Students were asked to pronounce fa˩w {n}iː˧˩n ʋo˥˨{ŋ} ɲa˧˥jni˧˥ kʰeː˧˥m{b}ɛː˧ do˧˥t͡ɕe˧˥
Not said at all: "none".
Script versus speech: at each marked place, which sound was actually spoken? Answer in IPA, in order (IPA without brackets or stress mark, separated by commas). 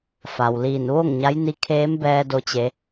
l, ŋ, b